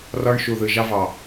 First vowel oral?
yes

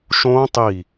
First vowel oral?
no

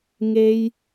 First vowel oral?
yes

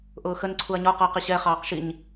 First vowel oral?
yes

